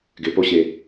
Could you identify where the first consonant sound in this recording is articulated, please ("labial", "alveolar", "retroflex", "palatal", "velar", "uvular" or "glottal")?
velar